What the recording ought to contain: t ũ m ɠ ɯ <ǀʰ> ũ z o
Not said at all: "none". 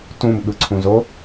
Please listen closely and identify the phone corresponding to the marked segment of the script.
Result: ǀʰ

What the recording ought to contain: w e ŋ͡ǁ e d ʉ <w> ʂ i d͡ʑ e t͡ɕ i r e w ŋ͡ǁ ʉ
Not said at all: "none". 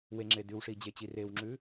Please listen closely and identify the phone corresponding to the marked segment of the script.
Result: w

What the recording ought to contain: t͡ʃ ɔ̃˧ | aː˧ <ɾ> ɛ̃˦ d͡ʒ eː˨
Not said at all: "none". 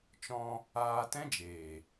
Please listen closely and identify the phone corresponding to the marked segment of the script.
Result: t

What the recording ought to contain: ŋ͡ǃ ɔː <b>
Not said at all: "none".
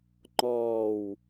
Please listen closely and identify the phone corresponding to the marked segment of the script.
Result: w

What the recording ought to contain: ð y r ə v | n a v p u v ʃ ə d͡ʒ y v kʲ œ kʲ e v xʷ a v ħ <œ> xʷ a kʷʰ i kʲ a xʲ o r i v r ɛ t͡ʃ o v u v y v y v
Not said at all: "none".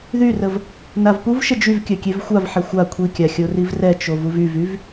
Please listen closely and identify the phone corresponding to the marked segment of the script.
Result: ɛ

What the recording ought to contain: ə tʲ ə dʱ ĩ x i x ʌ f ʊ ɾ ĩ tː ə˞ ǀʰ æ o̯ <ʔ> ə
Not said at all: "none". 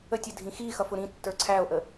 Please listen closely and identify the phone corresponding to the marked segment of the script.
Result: ʔ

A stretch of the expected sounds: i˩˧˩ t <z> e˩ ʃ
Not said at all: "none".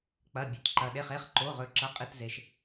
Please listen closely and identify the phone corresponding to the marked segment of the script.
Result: z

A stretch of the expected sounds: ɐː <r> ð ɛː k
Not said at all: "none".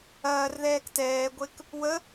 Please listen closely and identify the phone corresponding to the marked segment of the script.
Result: r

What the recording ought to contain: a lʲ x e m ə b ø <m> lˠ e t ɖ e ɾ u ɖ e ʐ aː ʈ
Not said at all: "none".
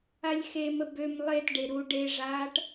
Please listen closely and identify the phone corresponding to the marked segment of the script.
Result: m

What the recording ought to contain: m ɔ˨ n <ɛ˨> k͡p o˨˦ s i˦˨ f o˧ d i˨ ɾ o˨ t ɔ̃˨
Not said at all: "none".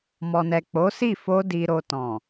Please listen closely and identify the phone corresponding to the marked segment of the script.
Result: ɛ˨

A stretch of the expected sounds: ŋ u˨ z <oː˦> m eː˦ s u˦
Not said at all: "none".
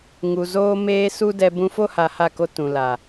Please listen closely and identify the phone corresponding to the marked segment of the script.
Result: oː˦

